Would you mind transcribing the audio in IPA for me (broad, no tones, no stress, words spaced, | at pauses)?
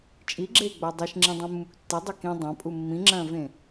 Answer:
t͡ʃʼiɡ͡ǁeːɡ͡ba dˤiʃŋ͡ǁĩdˤũmːuk tːedˤa kĩ dˤãpʼu mːĩŋ͡ǁɐ̃ːvẽ